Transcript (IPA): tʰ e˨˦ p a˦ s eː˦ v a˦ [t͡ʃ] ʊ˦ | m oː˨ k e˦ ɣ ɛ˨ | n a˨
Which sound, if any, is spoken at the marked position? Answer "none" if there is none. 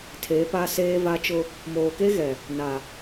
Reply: t͡ʃ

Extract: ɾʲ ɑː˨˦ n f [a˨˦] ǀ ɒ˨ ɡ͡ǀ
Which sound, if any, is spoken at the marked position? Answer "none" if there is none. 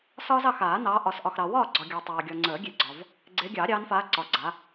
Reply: aː˨˦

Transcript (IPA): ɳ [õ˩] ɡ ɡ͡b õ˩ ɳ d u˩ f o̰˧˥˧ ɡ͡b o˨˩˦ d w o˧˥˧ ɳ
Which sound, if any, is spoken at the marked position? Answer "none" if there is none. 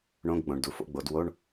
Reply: õ˧˥˧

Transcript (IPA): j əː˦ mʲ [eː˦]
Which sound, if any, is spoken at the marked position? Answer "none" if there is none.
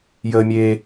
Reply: eː˦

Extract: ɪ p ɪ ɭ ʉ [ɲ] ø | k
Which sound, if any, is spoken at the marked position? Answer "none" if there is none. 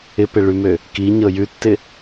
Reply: m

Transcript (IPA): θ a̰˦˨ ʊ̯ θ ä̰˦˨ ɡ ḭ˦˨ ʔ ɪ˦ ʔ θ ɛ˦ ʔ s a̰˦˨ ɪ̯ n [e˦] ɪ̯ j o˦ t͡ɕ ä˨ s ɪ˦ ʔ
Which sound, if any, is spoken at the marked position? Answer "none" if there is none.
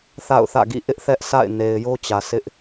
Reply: e˨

